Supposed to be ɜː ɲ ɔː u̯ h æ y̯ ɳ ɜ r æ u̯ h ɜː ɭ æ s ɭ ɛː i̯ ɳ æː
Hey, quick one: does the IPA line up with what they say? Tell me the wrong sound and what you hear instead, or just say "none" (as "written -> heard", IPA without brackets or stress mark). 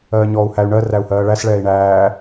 none